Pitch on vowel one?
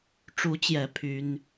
rising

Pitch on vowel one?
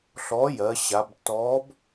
rising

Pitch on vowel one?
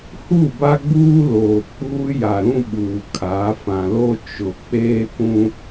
falling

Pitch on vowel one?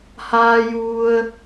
high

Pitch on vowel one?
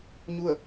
falling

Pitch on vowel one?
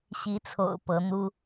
rising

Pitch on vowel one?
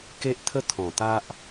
high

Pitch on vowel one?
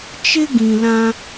high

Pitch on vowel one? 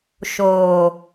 low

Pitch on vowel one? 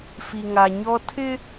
low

